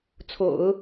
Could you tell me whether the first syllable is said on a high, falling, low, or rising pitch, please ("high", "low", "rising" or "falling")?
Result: low